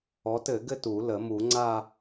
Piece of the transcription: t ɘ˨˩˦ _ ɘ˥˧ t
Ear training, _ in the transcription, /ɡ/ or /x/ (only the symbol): ɡ